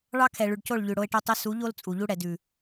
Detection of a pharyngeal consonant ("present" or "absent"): absent